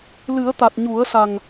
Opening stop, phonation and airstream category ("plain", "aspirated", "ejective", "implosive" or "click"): plain